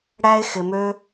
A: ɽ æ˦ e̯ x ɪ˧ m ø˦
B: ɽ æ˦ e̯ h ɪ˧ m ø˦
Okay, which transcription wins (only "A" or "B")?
A